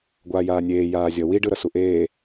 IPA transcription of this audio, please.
ɡʷ aː j aː nʲ eː j aː zʲ ʌ w i ɖ ɯ ɾ ʌ s u ʔ eː

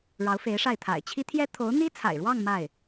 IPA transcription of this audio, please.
ɻ ɑ˧˥ ʊ̯ f e˧˥ ɪ̯ ʂ a˥˩ ɪ̯ t̪ʰ a̰˨˩ ɪ̯ t͡ɕʰ i˥ t̪ʰ j ɛ˥ t̪ʰ o˧˥ ʊ̯ n̪ i˥ t͡sʰ a̰˨˩ ɪ̯ ɻ w ɑ˥˧ ŋ m a˥˩ ɪ̯

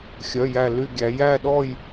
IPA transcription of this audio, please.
xʲ œ˧˥˧ j æ˥˧ l y˥˧ ɡʲ æ˧˥ j æ˥˧ ɗ ɔ˥˧ j

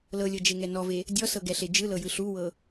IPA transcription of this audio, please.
l ɤ lʲ ɤ d͡ʒ e ŋ ɛ n ɔ v e | dʲ ɔ s ɤ ɡ ɛ ɬ e d͡ʒ ɯ l ɤ j ɯ ɬ u w ɤ

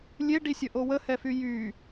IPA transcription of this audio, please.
lʲ e ɖ i sʲ ə ʔ o w ə h ɛ f y j y

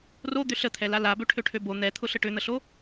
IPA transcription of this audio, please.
r o d̪ ʏ ɬ ə t̪ʰ ɛ l a l a b ø ʈʰ ø ʈʰ ø b o n̪ ɛ t̪ʰ ʊ ɬ ə ʈ ʏ n̪ ə ɬ o

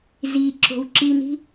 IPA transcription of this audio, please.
z i ǁ o̤ w ǁ i n i̤

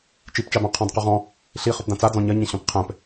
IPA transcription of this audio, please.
t͡ʃ i p t͡ʃ a b ã qʰ ɔ̃ d q ɵ ʁ ɔ̃ | ɬ i χ ɵ p d ã t͡s a d͡z ɔ̃ ɲ ɐ ɲ ɛ̃ ɕ ɔ̃ p qʰ ɛ̃ p

